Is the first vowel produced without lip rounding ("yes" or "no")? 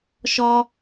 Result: no